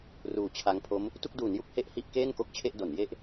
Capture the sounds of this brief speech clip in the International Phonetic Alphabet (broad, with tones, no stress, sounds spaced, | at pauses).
r uː˨˩ t͡ɕʰ a˧ ŋ pʰ o˦˥ m | t u˥˩ k̚ d uː˩˦ n j u˥˩ k̚ h e˥˩ ʔ h i˥˩ ʔ k eː˥˩ n k o˥˩ k̚ t͡ɕʰ e˥˩ ʔ d o˩˦ n j e˦˥ ʔ